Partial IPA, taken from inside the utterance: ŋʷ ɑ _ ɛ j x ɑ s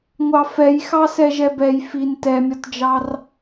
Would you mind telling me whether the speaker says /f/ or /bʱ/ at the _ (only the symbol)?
f